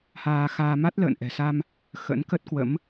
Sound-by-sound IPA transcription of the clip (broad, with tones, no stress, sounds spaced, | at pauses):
h aː˧ x aː˧ m a˦˥ t̚ l ə̰ː˧˨ n ʔ ɛ̤˨˩ s a˧ m | x ə̰˧˥ n k ə˦˥ t̚ k w ə̰˧˥ m